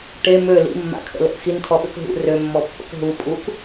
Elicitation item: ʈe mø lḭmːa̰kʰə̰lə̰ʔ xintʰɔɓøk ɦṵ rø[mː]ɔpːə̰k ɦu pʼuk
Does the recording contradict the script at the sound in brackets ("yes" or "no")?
no